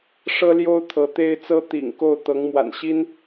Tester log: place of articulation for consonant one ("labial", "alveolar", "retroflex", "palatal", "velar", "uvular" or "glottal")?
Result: retroflex